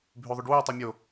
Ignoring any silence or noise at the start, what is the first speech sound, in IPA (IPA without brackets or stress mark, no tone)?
bʱ